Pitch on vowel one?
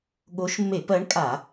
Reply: rising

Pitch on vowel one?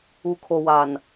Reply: low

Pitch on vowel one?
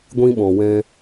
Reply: high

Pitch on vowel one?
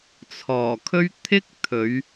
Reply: low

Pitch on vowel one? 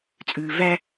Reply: low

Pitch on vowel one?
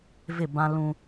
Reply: falling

